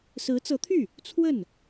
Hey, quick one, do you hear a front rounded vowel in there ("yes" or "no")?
yes